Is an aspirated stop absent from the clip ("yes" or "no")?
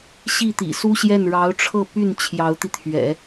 no